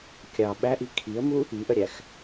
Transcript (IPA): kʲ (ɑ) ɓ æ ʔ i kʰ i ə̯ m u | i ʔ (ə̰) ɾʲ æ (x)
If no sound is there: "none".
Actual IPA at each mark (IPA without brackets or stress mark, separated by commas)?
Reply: ɑ, ə, x